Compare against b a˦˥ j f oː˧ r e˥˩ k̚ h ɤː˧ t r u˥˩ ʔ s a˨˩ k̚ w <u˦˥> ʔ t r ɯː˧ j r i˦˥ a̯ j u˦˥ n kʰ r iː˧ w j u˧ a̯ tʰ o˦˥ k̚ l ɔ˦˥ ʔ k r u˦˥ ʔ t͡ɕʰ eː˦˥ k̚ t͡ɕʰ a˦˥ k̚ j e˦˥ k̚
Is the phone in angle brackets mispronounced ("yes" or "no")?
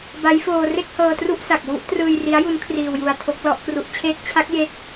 no